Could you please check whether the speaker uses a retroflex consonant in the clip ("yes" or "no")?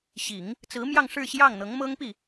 yes